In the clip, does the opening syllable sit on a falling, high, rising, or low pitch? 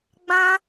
high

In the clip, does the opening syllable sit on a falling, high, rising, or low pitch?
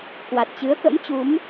low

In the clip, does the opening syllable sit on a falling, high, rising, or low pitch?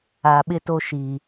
low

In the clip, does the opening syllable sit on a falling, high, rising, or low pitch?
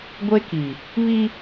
high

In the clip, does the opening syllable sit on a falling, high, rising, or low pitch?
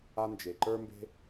high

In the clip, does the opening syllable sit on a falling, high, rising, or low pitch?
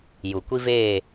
low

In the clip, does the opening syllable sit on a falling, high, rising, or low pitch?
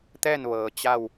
falling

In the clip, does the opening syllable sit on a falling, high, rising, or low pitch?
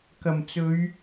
low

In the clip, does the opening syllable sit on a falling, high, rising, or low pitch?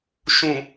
low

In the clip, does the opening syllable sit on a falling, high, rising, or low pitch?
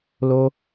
high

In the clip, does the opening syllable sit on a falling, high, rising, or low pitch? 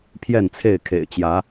falling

